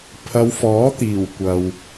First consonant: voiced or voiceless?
voiceless